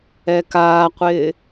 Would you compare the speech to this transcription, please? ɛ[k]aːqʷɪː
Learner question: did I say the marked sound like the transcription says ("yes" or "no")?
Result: yes